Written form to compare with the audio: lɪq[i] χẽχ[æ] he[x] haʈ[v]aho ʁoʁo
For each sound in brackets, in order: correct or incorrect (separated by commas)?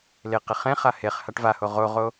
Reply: incorrect, incorrect, incorrect, correct